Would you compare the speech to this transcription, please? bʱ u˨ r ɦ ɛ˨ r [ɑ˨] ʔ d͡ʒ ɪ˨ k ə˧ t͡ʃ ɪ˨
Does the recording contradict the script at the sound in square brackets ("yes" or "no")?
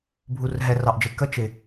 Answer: no